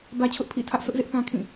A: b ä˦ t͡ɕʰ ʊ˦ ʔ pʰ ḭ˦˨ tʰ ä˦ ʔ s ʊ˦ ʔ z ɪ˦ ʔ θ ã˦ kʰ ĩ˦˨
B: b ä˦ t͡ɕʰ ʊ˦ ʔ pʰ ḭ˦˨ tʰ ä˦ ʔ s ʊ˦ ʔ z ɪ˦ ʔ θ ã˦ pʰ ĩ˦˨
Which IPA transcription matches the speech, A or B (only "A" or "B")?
A